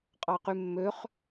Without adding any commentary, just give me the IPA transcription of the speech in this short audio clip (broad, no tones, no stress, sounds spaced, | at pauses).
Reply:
qʼ ɑ q y mː ø χ